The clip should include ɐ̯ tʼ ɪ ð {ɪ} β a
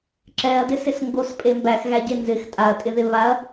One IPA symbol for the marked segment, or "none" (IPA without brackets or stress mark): ɪ